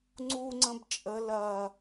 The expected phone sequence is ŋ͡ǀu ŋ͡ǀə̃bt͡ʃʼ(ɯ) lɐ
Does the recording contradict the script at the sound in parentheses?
yes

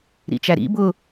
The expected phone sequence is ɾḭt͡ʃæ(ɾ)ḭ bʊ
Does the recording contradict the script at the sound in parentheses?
no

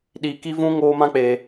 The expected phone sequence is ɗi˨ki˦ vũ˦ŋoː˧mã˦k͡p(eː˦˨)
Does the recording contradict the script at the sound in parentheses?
yes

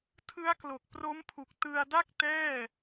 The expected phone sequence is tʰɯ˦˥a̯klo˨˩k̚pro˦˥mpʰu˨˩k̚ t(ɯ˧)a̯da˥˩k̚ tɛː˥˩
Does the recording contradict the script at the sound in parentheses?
no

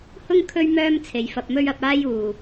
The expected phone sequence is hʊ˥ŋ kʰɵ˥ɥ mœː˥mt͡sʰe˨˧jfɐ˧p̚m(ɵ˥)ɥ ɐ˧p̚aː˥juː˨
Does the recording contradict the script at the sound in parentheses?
no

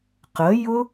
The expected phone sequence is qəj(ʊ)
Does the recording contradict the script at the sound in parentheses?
no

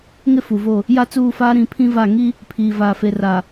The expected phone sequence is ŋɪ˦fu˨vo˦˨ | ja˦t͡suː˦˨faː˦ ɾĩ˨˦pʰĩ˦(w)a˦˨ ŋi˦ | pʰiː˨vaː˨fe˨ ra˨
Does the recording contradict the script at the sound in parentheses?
yes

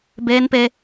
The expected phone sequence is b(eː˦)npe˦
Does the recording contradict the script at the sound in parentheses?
no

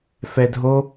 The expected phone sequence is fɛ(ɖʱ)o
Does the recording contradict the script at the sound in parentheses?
yes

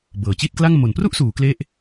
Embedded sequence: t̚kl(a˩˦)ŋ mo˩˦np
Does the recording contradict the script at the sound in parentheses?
yes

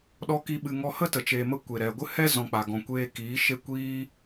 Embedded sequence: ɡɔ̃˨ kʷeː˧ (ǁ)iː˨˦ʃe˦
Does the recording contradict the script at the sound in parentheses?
yes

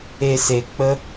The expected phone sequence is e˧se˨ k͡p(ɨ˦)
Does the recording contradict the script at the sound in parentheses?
yes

